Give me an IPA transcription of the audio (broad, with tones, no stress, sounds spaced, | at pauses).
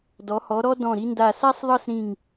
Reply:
d ɔ˩˧ h ɔ˩˧ ɾ ɔ˧ d ɔ̃˧˩ ɾ i˧ n d a˧˩ s a˥ sˤ ðˤ ɤ˥˧ s ɾ ĩ˧˩ ŋ